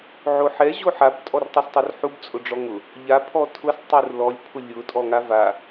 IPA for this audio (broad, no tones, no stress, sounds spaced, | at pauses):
ʕ o ħ ɛ ʑ o ħ a b tʼ ɔ r tˤ u s tˤ o r ħ u b t͡sʼ ʊ ɖ͡ʐ ɔ ŋ ʊ | ʎ a pʰ ɔ tʰ ʊ s tˤ u r l ɔ lʲ pʰ ʊ lʲ ʊ tʼ ɔ ŋ a v a